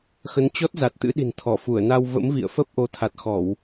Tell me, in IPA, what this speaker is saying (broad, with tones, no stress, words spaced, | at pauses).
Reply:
xə˨˦nt͡ɕɔ˦˥t̚za˨˩t̚ t̪ɨ̰˧˥ɗi̤˨˩n t̪ʰɔ˧˩ fu˧˩ə̯na˧w və̰˧˥mvḭ˧˨ə̯ fə˦˥p̚ʔo˨˦ t̪ʰa˨˩t̚xɔ˧˩˨w